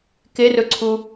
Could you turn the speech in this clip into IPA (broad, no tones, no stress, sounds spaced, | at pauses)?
k e r ɵ ǀʰ u